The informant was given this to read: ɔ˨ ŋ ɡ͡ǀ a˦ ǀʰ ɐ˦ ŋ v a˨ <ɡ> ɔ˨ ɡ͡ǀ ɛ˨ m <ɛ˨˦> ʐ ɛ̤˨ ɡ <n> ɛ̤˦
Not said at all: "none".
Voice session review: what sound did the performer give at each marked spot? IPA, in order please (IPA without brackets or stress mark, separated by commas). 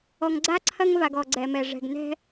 ɡ, ɛ˨, n